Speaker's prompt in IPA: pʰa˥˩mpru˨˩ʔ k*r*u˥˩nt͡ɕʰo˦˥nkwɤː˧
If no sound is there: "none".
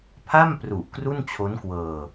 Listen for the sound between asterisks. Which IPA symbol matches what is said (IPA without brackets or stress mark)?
r